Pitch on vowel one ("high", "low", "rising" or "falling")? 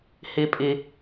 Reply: high